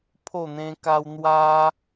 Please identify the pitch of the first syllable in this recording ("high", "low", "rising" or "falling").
falling